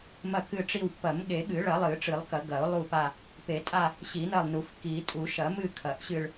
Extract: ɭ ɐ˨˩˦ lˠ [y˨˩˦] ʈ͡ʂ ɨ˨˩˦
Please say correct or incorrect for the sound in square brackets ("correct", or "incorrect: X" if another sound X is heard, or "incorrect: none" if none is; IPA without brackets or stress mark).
incorrect: ɨ˨˩˦